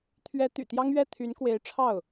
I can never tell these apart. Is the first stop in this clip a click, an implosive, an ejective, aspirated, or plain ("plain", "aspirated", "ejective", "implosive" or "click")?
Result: aspirated